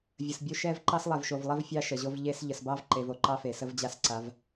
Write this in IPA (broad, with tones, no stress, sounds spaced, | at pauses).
vʲ ə˨ s bʲ o˦ ʃ ɛ˦ v ǃ ɑ˦ s lˠ ɛ˨ v ʃ o˨ v lˠ e˦ v fʲ ɑ˦ ʃ ə˨ ʑ o˦ v ʎ e˦ s ʎ ə˨ s b ɑ˦ v ǃ e˨ v o˨ ǃ ɑ˦ f e˨ s ə˦ v d͡ʑ a˦ s ǀ a˨˦ v